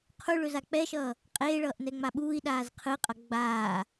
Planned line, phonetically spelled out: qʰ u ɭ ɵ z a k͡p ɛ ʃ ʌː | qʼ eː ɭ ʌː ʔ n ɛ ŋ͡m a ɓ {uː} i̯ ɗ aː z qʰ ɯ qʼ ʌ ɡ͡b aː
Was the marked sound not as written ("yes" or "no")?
no